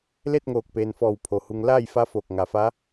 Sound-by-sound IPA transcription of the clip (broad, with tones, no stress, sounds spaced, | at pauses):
l e˥˨ t̚ ŋ oː˧˩ k̚ p eː˩ n f ɔː˧˩ w pʰ o˩ h u˧ ŋ l aː˥˨ j f a˧˥ f oː˧˩ k̚ ŋ a˩˧ f a˧˥